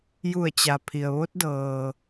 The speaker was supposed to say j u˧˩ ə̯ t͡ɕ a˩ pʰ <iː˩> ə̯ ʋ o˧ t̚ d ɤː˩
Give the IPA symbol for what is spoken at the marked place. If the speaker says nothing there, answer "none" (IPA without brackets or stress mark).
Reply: i˩